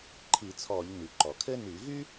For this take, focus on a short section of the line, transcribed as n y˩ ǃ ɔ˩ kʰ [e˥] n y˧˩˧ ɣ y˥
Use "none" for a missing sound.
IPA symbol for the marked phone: ɘ˥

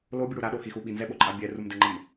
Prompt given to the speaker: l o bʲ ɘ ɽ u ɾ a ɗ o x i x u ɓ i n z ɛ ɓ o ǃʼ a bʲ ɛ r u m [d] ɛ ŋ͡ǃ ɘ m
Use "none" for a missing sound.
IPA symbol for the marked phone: d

